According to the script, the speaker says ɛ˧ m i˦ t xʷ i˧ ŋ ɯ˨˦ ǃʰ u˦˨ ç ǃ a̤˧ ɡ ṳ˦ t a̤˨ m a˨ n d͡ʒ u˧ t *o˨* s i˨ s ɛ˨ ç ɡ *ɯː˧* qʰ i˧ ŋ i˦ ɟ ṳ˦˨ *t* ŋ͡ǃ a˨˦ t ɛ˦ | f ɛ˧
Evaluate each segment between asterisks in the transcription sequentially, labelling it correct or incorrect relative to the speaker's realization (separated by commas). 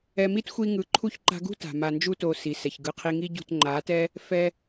correct, incorrect, correct